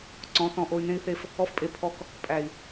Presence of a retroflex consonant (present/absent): absent